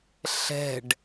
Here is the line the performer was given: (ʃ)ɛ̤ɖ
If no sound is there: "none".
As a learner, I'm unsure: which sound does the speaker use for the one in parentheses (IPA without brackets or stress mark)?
ɬ